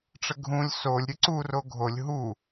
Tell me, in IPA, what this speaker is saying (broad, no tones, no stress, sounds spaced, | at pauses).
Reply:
ʈ͡ʂ ə ɡʱ ũ lʲ s o lʲ ɾʲ ɯ ǀ u r o ɡʱ o lʲ ɦ u